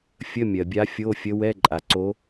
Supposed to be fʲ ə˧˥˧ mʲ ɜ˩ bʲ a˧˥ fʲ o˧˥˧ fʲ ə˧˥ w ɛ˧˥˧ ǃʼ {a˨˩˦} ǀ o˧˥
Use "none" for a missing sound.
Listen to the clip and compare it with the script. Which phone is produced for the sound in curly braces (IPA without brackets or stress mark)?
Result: a˩